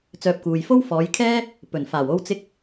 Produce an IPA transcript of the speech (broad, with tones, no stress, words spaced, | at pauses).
t͡sœː˧p̚kuː˨j fo˥wfɔː˨˧jkʰɛː˥ | pɵ˨˩nfaː˨˩wo˥w t͡sɪ˥k̚